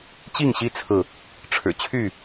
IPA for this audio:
t͡ɕi˥˨ŋɕi˦t͡sʰɹ̩˨ | ʈ͡ʂʰɻ̩˨˩ t͡ɕʰy˥˨

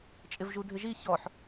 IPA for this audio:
t͡ʃʼɪvʒudʱɪʒi çɔħ

